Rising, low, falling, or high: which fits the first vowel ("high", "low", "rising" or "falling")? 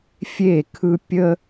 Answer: falling